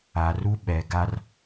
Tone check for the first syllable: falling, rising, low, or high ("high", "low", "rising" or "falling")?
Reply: low